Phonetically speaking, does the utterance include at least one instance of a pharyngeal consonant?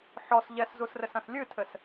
yes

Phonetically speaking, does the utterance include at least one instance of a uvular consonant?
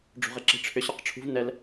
yes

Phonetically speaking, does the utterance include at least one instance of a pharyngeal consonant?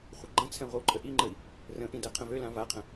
no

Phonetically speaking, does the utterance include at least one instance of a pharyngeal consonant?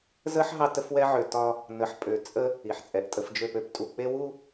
yes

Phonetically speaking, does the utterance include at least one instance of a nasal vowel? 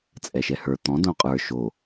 yes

